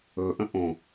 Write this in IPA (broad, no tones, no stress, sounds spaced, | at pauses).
ɵ ʔ ə̃ ʔ õ